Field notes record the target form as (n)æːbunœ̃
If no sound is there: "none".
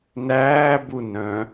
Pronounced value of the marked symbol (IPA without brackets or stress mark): n